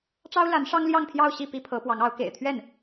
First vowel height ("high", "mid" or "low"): low